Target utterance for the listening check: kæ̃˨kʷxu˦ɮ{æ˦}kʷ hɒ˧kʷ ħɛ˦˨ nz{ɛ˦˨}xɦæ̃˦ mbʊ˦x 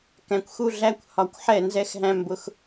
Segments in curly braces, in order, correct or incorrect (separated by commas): correct, incorrect